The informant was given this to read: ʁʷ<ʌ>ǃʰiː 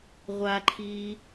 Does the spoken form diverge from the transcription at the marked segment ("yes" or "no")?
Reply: yes